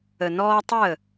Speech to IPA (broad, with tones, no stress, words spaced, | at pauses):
ə˨nɔː˧tˤə˦˨